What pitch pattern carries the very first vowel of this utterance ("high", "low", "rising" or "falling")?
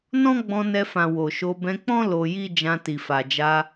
high